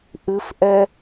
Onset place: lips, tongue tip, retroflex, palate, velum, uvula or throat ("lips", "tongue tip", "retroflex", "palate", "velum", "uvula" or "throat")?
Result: throat